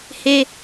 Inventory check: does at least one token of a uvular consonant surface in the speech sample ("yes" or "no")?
no